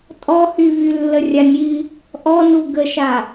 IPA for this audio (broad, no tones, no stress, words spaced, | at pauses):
tʼɔhy vylːərʲanʲi | ʔɔnu ɡəʃa